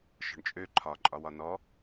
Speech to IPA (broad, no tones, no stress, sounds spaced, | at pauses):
ʃ ɔ̤ ɳ t͡ʃʼ ø ǃʰ ɒ ǃʼ ɒ w ɒ n ɔ